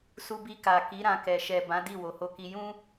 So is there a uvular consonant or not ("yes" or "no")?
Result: no